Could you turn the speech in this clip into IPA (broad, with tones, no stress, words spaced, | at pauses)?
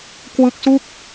kwɯ˦˥k̚su˥˩k̚